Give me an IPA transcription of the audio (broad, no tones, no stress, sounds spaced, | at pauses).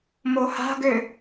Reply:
m o h a̤ ɡ ø